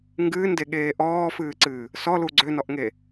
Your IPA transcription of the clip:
ŋ ɡ ɨː n d e ɠ eː ʔ ɔː f ɨː ǀ ɨː | s ɔ l u ɡ͡ǀ ø n ɔ ʔ ŋ e

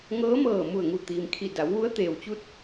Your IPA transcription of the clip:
ŋ ɤː˧˥ m ɤː˧˩ m u˧˩ ə̯ ŋ u˧˩ t̪ iː˩ m kʰ i˧˩ d a˩˧ w ʋ u˧˥ ə̯ t̪ eː˩ w t͡ɕ u˧˥ t̚

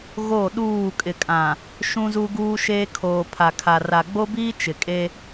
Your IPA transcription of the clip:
ɣ o˦˨ ɗ uː˦˨ kʼ ɪ˨ kʼ ã˨ | ʃ ũ˦ z u˦ ɡ uː˦ ʃ eː˦ kʰ oː˨ pʰ a˨ kʰ a˨ r a˨ ɡ͡b o˦ b iː˦ t͡ʃ ɪ˨ kʼ e˦

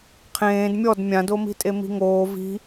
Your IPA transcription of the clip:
qʰ ẽː d mʲ ɔ d mʲ ã d o m i̤ tʼ e m i̤ ŋ oː v i̤

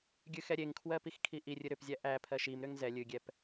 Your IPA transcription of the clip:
ɡʲ ɨ x ɛ ɾʲ e ŋ kʰ w ɜ p i x kʰ i ʔ i rʲ ɨ ɾ ʏ p zʲ æ ʔ æ pʰ ɜ ʃ i m ɾ ʏ ŋ z ɛ lʲ ɨ ɡʲ ɛ p

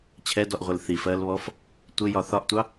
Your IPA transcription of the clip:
t͡ɕʰ ɛ d ɔ ʔ ʁʷ ɪ l θ i f ɜː l β ɔ f | tʷ ɪ j ɒ θ ɒ ʔ tʷ ɑ

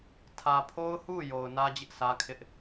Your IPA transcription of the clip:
tʰ ä˨ pʰ o˦ ʊ̯ h u˦˨ j o˨ ʊ̯ n ä˦ d͡ʑ ɪ˦ ʔ sʰ ä˦ kʰ ɪ˦ ʔ

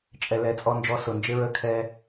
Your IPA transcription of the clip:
t͡ʃʼ ɛ˨ l ɛ˨˦ t͡sʼ ɔ˧ n d͡ʒ ɔ˧ s ʊ˨ n d͡ʒ ɪ˦ ɹ ə˦ kʰ ɛ˦

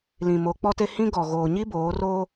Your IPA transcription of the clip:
l ĩ˨ m o˨˦ k͡p ɔ˦ t e˦ h ĩ˦ ɡ ɔ˨ ɣ oː˨ ɲ i˦ b oː˨˦ r oː˦

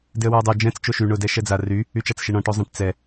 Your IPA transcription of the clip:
d ɪ ə̯ w œ ʊ̯ dˤ o d͡ʒ ɛ̃ t͡s t͡ʃ o ʃ y ɳ ʊ d ɛ ʃ ɛ d͡z a r y | y t͡ʃ a t͡s ʃ ɪ ɳ ɔ̃ ʈ o zˤ ɛ̃ ʈ t͡s ɛ

